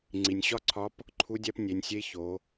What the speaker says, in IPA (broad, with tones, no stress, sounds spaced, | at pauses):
ŋ͡ǀ i˩ nʲ ɕ ɒ˥ ǀʰ ɒ˧˥ p | ǃʰ u˧˥ dʲ æ˧˥ p nʲ e˩˧ nʲ sʲ e˧˥ ç o˩˧